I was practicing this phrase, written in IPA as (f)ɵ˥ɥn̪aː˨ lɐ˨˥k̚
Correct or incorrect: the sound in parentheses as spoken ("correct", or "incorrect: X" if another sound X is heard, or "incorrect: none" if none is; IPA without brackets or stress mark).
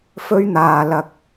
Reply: correct